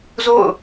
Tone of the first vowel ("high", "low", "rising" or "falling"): falling